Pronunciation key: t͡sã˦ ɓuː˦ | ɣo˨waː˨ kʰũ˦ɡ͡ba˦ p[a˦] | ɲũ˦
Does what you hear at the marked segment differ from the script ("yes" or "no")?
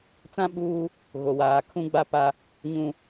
no